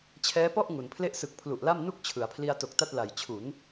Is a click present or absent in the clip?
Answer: absent